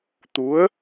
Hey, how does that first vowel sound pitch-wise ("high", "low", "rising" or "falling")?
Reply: rising